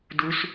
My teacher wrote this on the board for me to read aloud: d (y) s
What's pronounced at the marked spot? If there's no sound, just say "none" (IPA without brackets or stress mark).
u